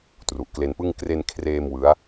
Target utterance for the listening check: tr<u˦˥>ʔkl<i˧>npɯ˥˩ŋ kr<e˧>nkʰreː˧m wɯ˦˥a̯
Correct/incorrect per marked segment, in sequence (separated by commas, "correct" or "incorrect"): incorrect, incorrect, correct